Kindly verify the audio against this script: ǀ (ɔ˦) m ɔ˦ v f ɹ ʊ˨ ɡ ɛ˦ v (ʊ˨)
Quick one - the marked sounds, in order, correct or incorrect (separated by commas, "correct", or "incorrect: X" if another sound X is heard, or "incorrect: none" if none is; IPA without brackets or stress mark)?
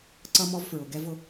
incorrect: ʌ˦, incorrect: ʊ˦